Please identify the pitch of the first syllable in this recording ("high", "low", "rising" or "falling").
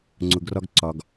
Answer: low